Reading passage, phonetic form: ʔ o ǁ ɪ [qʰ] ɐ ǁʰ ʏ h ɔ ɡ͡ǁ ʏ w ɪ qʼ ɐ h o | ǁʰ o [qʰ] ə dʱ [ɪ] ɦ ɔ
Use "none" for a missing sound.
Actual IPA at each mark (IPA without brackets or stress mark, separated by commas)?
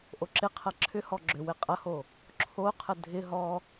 qʰ, qʰ, ɪ